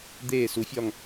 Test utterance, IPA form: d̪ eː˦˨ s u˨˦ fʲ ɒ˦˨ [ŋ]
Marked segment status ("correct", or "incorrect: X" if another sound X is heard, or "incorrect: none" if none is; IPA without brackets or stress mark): correct